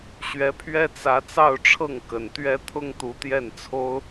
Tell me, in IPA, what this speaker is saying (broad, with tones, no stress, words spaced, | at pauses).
ɕɥɛ˧˥pʰɥɛ˥ t͡sä˧˥ t͡sɑ˥˧ʊ̯ʈ͡ʂʰɤ˥˩ŋ kə˨˩nt̪ɥɛ˥ t̪ʰʊ˥ŋt̪u˧˥t̪jɛ˥˩nt͡sʰo˥ʊ̯